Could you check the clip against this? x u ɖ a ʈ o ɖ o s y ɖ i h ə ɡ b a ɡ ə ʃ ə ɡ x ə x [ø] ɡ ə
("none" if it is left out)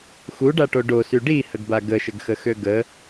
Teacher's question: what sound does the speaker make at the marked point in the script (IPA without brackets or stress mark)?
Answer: ø